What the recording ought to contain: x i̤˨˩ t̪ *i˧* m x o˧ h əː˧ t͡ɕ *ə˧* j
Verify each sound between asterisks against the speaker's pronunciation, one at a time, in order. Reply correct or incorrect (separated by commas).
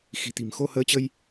incorrect, correct